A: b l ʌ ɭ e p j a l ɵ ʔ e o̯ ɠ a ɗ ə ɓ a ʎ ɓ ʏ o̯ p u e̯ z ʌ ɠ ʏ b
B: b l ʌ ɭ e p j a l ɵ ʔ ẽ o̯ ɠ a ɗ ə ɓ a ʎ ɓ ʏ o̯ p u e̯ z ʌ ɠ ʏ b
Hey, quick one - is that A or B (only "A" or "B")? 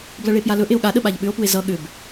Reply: A